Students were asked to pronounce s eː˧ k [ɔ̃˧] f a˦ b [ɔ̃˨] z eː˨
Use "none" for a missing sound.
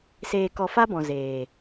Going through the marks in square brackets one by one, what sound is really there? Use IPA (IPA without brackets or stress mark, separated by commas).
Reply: ɔ˧, ɔ̃˨